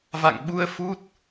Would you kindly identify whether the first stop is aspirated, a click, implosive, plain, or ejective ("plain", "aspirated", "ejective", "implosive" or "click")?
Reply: implosive